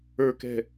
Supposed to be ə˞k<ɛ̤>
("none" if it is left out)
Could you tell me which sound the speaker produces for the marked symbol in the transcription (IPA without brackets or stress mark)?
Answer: ɛ̤